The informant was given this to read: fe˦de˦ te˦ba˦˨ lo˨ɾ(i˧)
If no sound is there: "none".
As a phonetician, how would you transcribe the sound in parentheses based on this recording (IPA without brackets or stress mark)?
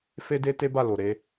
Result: e˧